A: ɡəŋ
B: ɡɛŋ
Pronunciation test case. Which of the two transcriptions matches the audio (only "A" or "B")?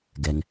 B